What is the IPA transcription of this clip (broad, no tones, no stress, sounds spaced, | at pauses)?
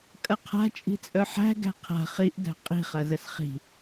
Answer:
kʼ ɐ qʰ a̤ t͡ʃʼ i̤ t͡sʼ œ ħ æ̤ ɡ æ̤ qʰ a̤ χ i ʔ d æ̤ qʼ i̤ χ ɐ z ə s χ i̤